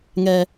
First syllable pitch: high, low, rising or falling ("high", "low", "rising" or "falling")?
high